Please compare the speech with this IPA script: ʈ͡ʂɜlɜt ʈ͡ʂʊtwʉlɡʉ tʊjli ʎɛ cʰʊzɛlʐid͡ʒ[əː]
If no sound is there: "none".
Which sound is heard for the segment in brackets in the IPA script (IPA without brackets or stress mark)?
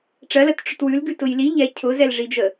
ə